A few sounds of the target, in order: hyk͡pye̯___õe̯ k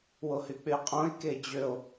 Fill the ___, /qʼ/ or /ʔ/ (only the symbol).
qʼ